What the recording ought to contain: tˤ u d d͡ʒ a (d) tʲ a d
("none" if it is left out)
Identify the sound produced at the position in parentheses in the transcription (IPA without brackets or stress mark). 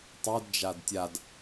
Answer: d